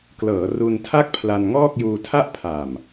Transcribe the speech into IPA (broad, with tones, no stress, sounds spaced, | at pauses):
k l ɤː˩˦ r u˧ n tʰ a˥˩ k̚ pʰ l a˧ n ŋ ɔː˥˩ k̚ j uː˧ tʰ a˥˩ ʔ pʰ a˨˩ m